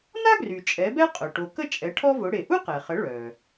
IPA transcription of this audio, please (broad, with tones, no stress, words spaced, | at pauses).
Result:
na˥ɡry˩ t͡ʃʼɛ˩˥bɛ˥qʼœ˩ ʈo˩ kə˥t͡ʃʼɛ˩˥ ʈʰɔ˥vʊ˩˥ ɽe˩ ʔu˥qɛ˩χə˩˥ ɭœ˩